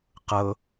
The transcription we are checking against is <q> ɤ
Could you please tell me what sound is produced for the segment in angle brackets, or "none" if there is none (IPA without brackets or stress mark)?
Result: q